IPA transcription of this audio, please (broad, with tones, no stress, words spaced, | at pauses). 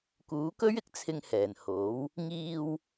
kuː˨˥kɵ˥ɥɪ˨˥k̚ t͡sʰɪ˧ŋhɛː˨˩n ho˨˥w | ŋiː˧w